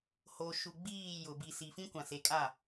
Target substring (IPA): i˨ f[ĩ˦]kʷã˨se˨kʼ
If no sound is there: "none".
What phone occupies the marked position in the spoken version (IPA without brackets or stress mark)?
ĩ˦